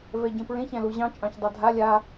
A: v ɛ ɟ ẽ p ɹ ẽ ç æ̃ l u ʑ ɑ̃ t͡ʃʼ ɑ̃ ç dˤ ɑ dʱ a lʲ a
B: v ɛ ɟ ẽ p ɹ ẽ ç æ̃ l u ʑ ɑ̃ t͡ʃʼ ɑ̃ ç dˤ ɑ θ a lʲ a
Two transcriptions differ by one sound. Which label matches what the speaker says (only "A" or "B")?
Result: A